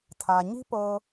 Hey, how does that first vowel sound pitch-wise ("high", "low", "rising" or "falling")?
low